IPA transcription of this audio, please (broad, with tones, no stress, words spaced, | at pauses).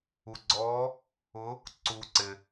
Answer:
u˨ɡ͡ǀɔː˧˥ | ʊ˧˥ | ǀuː˨ǀɪ˨